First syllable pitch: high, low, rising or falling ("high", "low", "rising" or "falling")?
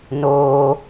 low